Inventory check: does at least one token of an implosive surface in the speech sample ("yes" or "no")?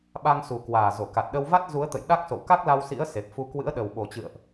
yes